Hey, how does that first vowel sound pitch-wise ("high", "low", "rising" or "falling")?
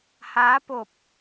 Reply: rising